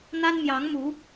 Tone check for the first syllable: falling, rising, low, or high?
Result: high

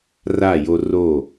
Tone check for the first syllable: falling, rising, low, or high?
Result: falling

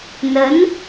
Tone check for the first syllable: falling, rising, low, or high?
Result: rising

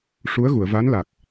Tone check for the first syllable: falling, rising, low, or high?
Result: rising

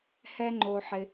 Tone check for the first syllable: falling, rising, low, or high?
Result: high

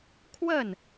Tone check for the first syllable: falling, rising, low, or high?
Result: falling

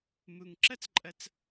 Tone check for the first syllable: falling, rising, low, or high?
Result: low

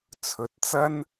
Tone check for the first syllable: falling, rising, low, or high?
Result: rising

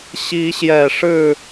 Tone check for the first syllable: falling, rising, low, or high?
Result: rising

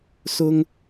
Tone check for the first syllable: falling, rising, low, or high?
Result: high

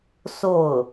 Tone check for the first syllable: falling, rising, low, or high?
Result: falling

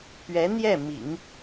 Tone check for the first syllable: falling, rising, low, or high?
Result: rising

